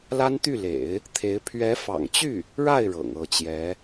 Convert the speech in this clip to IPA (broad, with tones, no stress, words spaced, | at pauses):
la˥nt̪y˥˩lḛ˨˩˦ɪ̯ | t̪ʰe˧˥ɪ̯ pʰɥɛ˧˥fɑ̰˨˩ŋt͡ɕy˥˩ | ɻa˥˩ɪ̯ ɻɤ̰˨˩ŋɤ˥˩t͡ɕjɛ˧˥